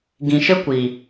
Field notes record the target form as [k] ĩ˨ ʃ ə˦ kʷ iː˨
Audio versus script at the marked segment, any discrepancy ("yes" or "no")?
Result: yes